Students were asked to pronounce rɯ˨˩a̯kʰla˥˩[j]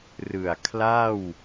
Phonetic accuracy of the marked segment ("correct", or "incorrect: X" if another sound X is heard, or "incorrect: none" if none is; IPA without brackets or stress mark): incorrect: w